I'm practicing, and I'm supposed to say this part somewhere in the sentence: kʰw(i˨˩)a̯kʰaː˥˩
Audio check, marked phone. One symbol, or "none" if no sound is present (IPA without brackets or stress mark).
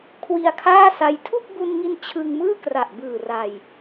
i˧